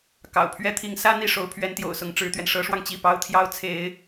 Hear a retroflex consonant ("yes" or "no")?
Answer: yes